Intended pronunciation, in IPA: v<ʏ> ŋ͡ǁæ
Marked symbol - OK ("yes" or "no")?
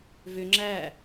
yes